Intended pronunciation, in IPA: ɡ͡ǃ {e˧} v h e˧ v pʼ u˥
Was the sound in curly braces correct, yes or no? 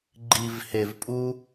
no